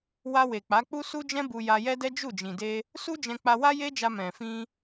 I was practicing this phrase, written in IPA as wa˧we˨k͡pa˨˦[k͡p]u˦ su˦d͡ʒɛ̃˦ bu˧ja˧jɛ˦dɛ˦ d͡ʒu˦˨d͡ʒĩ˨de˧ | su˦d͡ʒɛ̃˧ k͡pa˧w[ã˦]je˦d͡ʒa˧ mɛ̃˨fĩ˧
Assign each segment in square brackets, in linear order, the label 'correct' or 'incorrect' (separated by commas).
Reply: correct, incorrect